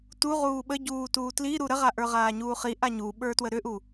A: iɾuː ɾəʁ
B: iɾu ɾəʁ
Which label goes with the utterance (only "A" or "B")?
B